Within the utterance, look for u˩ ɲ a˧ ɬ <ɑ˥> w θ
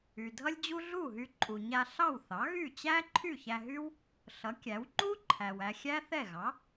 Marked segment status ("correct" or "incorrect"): incorrect